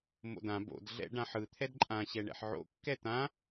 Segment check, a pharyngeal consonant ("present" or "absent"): present